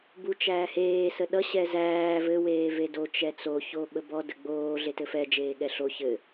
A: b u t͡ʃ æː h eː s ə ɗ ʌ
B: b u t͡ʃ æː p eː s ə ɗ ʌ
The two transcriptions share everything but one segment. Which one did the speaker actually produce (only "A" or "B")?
A